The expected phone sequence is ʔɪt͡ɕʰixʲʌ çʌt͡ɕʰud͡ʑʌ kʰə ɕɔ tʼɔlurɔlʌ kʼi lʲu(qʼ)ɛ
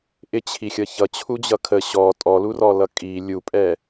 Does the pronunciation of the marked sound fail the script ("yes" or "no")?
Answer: yes